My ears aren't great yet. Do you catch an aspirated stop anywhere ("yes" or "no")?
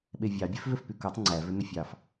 no